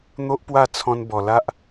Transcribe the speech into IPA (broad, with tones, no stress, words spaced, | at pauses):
n̪o˦ʔpwa˥˧t͡sʰɔ̃˧n bɔ˨˩la˦ʔ